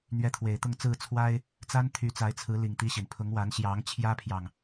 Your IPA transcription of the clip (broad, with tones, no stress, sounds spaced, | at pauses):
n̪ ɥ ɛ˨˦ t̪ʰ w e˨˩ ɪ̯ t̪ ʊ˥˨ ŋ t͡s ɹ̩˥˨ t͡sʰ w a˦ ɪ̯ | t͡s a˦ n t̪ʰ y˨˦ t͡s a˨˦ ɪ̯ t͡sʰ ɹ̩˨˦ l i˨˩ ŋ t̪ i˦ ɕ i˩ n pʰ ʊ˨˦ ŋ w a˨˦ n ɕ j ɑ˨˦ ŋ t͡ɕʰ j ä˦ pʰ j ɑ˨ ŋ